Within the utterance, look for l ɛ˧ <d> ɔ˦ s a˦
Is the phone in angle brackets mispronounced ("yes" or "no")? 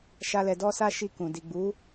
no